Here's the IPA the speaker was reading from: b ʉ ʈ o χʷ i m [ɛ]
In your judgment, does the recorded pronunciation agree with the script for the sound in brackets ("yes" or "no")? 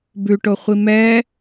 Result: yes